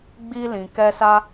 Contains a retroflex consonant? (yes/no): no